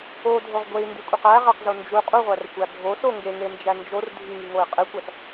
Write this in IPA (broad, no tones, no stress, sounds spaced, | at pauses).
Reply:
o dʱ o ʁ ɡʷ e i̯ n d i kʷʼ e q æ ʁ æ q z o n d͡ʒ u qʼ u ʁʷ æ r xʷ æ bʱ o s o ŋ ɡ e ŋ e n d͡ʒ æ n d͡ʒ o r dʱ i ŋ i ŋ o i̯ qʼ e kʷ æ s